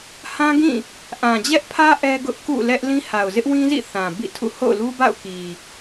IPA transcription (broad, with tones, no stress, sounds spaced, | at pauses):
h ã˦ ɡ ĩ˦˨ | ʔ ã˨ d͡ʑ ɛ˦ ʔ pʰ ä˦ ʔ ɛ˦ ɡ ʊ˦ ʔ k ṵ˦˨ l ɛ˦ ʔ l ĩ˦ h a˨ ʊ̯ z ɪ˦ ʔ w ĩ˦ z ḭ˦˨ θ ã˨ b ḭ˦˨ tʰ ṵ˦˨ h o̰˦˨ ʊ̯ l u˦ b a̰˦˨ ʊ̯ k i˨